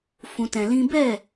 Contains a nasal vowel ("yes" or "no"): yes